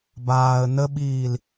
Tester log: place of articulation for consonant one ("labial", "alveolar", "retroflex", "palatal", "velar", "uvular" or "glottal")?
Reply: labial